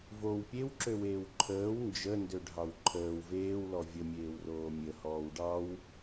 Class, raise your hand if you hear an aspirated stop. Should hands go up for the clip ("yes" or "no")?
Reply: yes